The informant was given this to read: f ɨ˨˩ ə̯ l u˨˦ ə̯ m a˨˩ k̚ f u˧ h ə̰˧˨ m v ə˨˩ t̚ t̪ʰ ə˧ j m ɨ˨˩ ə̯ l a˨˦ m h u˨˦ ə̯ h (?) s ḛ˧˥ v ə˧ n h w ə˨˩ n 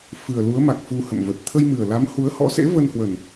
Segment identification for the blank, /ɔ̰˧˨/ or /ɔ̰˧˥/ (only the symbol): ɔ̰˧˥